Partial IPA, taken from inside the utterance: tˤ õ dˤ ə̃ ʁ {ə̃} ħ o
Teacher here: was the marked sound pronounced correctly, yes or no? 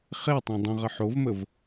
no